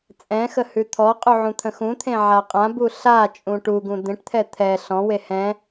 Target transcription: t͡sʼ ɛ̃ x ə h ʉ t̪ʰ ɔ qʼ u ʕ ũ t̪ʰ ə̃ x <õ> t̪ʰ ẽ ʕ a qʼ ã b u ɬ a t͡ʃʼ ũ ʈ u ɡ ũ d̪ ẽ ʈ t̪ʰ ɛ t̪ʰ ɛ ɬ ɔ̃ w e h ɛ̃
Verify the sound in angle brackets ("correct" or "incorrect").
incorrect